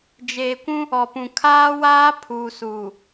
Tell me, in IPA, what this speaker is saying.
d͡ʒ eː˨ kʷ ũ˦ | ɔ˨ p ũ˨ kʰ aː˦ w aː˦ pʰ uː˨ s uː˨

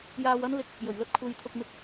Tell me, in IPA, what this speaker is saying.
j aː˧ w ɐ˥ n l ɪ˧ k̚ | j ɵ˨˩ ɥ l ɵ˧ t̚ kʷʰ e˨˧ j t̪ʰ ʊ˧ k̚ m ɪ˧ k̚

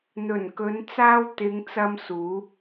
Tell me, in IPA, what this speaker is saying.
n̪ ɵ˨˩ n k ɵ˨˧ n t͡s aː˧ w t̪ ɪ˨˧ ŋ t͡s ɐ˧ m s uː˨˧

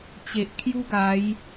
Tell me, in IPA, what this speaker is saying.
t͡ɕ e˨ ʔ kʰ j u˦ ɡ a˨˦ j

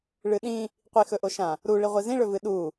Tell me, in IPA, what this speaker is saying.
ɭ ɨ ɗ ĩ | qʷ i x ɵ ʔ o ʃ ã | ɾ u ɭ i ʁʷ i z ĩ ɭ ɵ v ɨ ɗ u

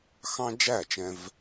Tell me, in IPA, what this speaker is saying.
x ɑ̃˦ d͡ʒ æ˦˨ t͡ʃ ɛ̃˦ v

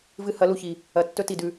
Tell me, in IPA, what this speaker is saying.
v ɨ˧ h ɐ˨˦ l u˨ ç i˨ | ɐ˨ tː ɵ˦ t i˨ d ʉ˧

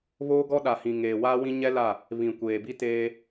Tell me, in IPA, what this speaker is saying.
β oː˦ ɡ ɔ˦ ɗ a˨ h ĩ˨ ŋ eː˨ w aː˦ w ĩ˦ ɲ ɛ˦ l a˦˨ | β ĩ˨ kʷ eː˨ b i˦ t eː˦

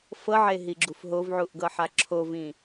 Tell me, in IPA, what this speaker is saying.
f ɤ ʕ e ɦ i ɡ͡ǁ u f ɦ o v ʕ u ʔ ɡ ɤ ħ a ǁʰ o v ĩ

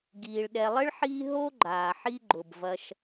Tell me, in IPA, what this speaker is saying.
ɡ iː˩ ɭ ɗ ɛ˨ lˠ ɪ˥ ɭ ħ iː˦ ɦ o˥ ɡ͡ǃ aː˩ ħ i˦ ɡ͡ǃ ʊ˩ b v ɐ˨ ʃ

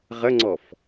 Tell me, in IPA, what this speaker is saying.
ʁ ə ŋ͡ǀ ɔ f

